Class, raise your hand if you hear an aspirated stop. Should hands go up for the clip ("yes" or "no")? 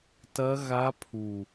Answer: yes